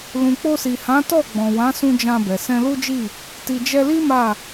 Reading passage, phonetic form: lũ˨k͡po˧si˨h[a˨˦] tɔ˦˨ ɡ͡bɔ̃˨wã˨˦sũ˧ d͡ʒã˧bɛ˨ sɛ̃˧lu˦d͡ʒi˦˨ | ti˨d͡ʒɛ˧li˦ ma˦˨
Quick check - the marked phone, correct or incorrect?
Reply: incorrect